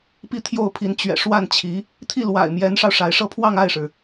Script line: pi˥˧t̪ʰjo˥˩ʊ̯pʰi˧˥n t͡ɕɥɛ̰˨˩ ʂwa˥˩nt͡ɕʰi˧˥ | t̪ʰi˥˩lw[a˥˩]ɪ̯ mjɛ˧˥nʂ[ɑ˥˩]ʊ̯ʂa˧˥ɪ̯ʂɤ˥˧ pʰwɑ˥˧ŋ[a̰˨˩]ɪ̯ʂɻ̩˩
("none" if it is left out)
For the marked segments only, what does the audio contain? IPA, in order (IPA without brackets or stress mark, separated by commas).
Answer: a̰˨˩, ɑ˧, a˥˩